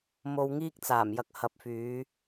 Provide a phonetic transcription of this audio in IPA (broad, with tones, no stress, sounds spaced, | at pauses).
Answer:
m o˧ w ŋ iː˥ k̚ t͡s aː˨˩ m j ɐ˨˥ k̚ h ɐ˨ p̚ f yː˨˧